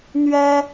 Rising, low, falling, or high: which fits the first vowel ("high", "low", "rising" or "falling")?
high